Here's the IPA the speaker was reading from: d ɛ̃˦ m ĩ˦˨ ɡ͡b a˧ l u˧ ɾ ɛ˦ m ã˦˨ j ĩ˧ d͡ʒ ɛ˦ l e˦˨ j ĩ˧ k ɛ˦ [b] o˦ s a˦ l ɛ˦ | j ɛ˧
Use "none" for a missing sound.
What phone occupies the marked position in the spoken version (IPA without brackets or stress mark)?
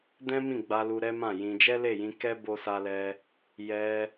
b